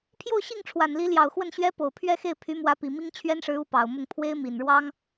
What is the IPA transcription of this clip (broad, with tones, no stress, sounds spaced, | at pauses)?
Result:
pʰ j o˥˧ ʊ̯ ɕ i˥˩ ŋ ʈ͡ʂʰ w a˨˩ n l i˧˥ l j ɑ˨˩ ʊ̯ x w ə˥˩ n ɕ ɥ ɛ˥ p o˨˩ ʊ̯ pʰ ɥ ɛ˥˧ x e˥˩ ɪ̯ pʰ y˧˥ m w ä˧˥ p i˨˩ m i˥ ŋ t͡ɕʰ ɥ ɛ˥ n ʂ ɻ̩˧˥ u˧˥ p ɑ˨˩ ʊ̯ m ʊ˥˩ ŋ pʰ w e˥ ɪ̯ m i˨˩ n ɻ w ɑ˥ ŋ